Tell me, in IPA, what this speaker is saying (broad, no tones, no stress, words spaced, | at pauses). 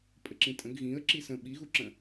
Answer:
pʼəǁĩtʼə̃ɡ ɣĩə̯ ǁisə̃ ɓiɣuǁə̃